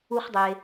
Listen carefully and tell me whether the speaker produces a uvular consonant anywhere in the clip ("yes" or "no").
yes